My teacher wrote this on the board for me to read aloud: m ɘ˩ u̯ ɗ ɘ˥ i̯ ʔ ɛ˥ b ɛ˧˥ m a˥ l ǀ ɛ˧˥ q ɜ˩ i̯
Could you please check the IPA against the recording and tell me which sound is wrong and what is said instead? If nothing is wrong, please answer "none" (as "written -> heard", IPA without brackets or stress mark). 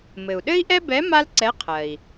q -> qʰ